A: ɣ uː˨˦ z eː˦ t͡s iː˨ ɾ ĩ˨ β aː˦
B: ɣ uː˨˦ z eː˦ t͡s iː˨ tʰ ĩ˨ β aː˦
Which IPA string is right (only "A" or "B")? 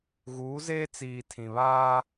B